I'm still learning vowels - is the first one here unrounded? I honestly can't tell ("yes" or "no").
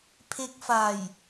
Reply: yes